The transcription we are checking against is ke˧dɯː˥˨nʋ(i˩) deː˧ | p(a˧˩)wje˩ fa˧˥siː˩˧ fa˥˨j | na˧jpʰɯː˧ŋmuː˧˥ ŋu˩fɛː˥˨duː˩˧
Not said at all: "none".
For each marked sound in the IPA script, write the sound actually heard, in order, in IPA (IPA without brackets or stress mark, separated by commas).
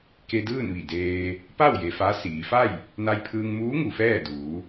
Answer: i˧˩, a˥˨